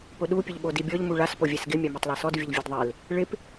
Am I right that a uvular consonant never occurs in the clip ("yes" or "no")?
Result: yes